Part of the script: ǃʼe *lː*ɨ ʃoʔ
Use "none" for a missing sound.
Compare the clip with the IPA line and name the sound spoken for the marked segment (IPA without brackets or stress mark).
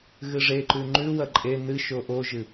n